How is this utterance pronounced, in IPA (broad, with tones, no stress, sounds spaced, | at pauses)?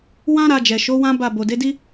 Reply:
w ã˦ ɾ a˧ d͡ʒ ɛ˨ ʃ o˨˦ w ã˦ b a˦˨ b o˨ d e˨˦ d i˦